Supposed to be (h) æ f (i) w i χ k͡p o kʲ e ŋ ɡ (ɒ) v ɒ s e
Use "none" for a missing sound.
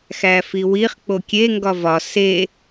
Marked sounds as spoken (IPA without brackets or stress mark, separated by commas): x, i, ɒ